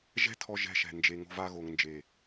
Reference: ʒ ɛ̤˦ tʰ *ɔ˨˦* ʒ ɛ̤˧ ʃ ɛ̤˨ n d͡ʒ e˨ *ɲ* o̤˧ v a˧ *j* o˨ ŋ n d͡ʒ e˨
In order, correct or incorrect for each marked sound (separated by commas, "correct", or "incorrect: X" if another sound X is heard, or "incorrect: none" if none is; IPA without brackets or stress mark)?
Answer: incorrect: ɔ˧, incorrect: ŋ, incorrect: ɣ